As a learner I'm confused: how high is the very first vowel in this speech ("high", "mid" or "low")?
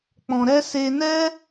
mid